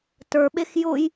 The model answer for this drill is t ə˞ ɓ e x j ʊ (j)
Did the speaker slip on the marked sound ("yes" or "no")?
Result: no